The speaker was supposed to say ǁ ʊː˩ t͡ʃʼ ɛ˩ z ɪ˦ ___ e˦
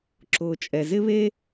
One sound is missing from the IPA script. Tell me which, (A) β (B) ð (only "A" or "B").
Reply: A